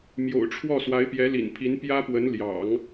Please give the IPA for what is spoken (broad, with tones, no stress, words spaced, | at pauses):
mjo̰˨˩ʊ̯ʈ͡ʂʰwɔ˥˩ swa˧˥ɪ̯pjɛ˧˥lḭ˨˩npʰi˧˥n pjä˥pwə˧˥n ljɑ̰˨˩˦ŋ